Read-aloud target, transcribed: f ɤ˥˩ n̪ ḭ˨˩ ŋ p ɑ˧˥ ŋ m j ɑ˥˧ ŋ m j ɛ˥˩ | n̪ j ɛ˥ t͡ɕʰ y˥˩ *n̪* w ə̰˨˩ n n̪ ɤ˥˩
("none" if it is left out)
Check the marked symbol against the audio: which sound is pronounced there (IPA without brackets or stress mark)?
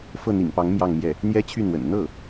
n̪